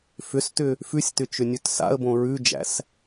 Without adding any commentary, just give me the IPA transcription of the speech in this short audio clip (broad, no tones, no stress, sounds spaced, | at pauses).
f ʏ s t ʏ | f ʉ sʲ t ʏ t͡ʃ ʏ nʲ ʉ t s a̰ ə̯ b õ ɹ ʉ d͡ʒ æ̰ s